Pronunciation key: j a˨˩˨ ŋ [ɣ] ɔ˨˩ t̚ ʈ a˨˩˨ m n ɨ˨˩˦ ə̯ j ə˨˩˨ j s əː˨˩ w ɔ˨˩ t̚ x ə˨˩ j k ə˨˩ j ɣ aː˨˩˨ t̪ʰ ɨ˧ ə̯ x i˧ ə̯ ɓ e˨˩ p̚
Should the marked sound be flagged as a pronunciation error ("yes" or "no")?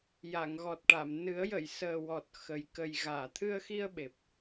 no